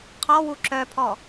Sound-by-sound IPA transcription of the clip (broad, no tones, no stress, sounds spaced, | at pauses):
qʰ ɔ w u ǁ œ pʰ ɔ